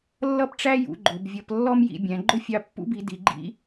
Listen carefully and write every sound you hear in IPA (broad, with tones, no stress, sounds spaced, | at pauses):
lː ʌ˥ p ʈ͡ʂ æ˥ j ṵ˩˧ ɡ͡ǃ ʊ˩˧ b vʲ ʌ˧ p lː ɔ˥ m j ḭ˩˧ bʲ æ̃˩˧ ɡ͡ǃ ʊ˥ fʲ ɑ˧ pː ṵ˧˥ b i˩˧ d i˩˧ ɡ͡ǃ ḭ˥